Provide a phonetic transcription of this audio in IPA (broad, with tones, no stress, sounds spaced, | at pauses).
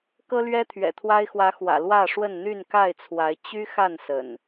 k ɤ˦ l ɥ ɛ˦ t̪ʰ ɥ ɛ̰˨˩ t̪ʰ w a˦ ɪ̯ x w ä˨˦ x w ä̰˨˩ l w ä˥˨ ʂ w ə˥˨ n n̪ y˥˨ n k a˥˨ ɪ̯ t͡sʰ w a˨˦ ɪ̯ t͡ɕ y˦ x a˥˨ n s ə̰˨˩ n